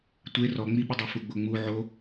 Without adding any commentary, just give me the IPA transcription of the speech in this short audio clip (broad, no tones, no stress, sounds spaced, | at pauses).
tʷ e r ɔ ŋ͡m i ɓ ə dˤ u f u ɡ͡b o ŋ͡m u ʕ o